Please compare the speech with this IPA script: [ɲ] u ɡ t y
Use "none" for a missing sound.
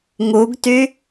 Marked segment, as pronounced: ŋ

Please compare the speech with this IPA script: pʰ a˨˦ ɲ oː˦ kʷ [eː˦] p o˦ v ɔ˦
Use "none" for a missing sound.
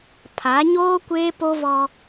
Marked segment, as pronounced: eː˦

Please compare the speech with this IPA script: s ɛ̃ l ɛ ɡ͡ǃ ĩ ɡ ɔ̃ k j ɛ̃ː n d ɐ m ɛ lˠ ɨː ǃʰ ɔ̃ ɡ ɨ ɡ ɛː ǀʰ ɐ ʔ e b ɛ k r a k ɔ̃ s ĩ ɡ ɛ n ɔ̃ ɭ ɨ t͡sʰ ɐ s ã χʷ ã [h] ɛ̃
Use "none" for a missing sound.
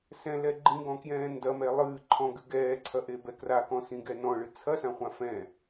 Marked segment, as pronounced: f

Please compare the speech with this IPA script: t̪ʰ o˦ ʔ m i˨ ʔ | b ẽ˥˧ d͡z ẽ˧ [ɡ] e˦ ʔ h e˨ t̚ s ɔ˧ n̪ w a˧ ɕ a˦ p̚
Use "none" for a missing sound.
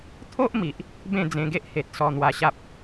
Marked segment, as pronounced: ɡ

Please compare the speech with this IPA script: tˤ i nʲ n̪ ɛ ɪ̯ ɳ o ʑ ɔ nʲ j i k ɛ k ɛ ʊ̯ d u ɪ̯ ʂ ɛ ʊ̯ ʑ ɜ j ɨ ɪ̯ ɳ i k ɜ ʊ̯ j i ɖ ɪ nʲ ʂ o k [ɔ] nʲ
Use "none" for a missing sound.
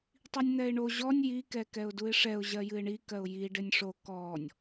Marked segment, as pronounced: ɔ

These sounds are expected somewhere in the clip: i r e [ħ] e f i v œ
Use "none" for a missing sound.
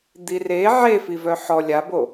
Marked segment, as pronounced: ʕ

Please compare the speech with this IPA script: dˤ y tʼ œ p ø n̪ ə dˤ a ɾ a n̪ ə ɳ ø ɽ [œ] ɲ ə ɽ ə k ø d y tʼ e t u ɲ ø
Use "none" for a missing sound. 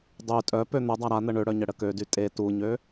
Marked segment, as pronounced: œ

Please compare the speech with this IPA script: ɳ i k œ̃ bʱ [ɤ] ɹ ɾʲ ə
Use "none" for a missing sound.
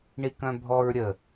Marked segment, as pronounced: ɔ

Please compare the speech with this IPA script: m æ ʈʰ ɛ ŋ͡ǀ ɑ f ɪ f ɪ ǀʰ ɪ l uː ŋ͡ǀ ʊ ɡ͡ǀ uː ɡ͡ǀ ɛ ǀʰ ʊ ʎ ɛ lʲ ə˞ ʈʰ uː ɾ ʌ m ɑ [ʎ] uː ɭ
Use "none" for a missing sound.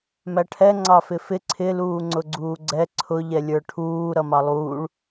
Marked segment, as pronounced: lˠ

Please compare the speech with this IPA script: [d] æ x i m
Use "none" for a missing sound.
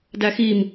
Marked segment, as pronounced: d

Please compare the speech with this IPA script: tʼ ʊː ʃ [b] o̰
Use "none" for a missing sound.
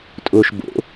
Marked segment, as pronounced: b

